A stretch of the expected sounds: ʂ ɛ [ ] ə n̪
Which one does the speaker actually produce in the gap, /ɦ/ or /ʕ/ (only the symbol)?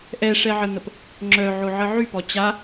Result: ʕ